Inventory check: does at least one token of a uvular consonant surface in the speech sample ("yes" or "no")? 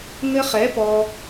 yes